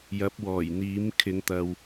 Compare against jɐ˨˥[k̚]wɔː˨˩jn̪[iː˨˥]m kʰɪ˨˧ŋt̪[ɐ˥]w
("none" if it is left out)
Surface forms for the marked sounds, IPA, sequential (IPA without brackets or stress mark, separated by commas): p̚, iː˨˥, ɐ˨